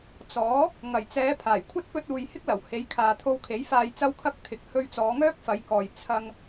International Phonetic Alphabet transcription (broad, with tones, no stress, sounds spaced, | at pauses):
t͡s ɔː˨˥ | ŋ ɐ˨˩ j t͡s ɛː˨˧ pʰ aː˨˩ j kʷʰ ɐ˥ t̚ p ɵ˧ t̚ uː˨ j h ɪ˥ k̚ l ɐ˨˩ w h e˨˧ j kʰ aː˨ t̪ʰ o˧ w kʰ e˨˥ j f aː˨ j t͡s ɐ˧ w kʰ ɐ˧ k̚ t̪ʰ ɪ˨ k̚ h ɵ˧ ɥ t͡s ɔː˨˧ ŋ œː˥ k̚ f ɐ˨˧ j k ɔː˨ j t͡sʰ ɐ˧ ŋ